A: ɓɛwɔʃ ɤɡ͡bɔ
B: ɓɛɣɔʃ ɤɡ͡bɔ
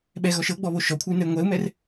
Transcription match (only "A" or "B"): B